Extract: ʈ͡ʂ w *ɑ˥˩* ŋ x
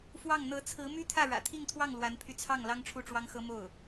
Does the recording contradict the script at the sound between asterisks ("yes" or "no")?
yes